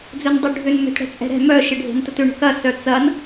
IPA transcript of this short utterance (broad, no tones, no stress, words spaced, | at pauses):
d͡zœndˤʊ ɖʱʏn mɛ̤tɽɛ̤t͡sʼɛ̤ɾɛ̤ mœ ʃɪɖʱe̤ntətʏ ɳə̤kɐ sœt͡sɐn